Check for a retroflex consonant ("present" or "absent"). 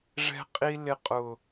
present